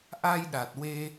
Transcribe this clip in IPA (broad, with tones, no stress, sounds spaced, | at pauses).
ʔ a˧ j ɗ a˨˩ t̚ w e˧